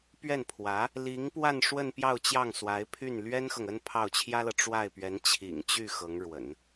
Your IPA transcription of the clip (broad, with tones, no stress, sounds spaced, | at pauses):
p ɥ ɛ˥˩ n pʰ w ä˧˥ | l i˧˥ ŋ p w a˥˧ n ʂ w ə˥˧ n p j ɑ˥˧ ʊ̯ t͡ɕ j ɑ˥˩ ŋ s w a˧˥ ɪ̯ pʰ y˥˩ n l ɥ ɛ˥ n x ɤ˨ ŋ ə˥ n pʰ ɑ˥˩ ʊ̯ t͡ɕʰ j ä˥ l ɤ˨ ʈ͡ʂ w a˥˩ ɪ̯ p ɥ ɛ˧˥ n t͡ɕʰ ḭ˨˩ ŋ t͡ɕ y˥˩ x ɤ˧˥ ŋ ɻ w ə̰˨˩˦ n